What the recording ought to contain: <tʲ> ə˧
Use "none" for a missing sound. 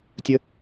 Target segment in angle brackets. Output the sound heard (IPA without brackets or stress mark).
tʲ